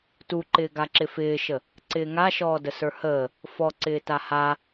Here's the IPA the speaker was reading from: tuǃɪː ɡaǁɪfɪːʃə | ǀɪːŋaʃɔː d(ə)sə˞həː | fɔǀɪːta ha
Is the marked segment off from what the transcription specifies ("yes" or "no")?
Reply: no